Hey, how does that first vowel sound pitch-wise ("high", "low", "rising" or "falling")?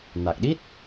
low